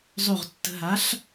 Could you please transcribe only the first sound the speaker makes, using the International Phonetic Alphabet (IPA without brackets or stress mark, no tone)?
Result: zˤ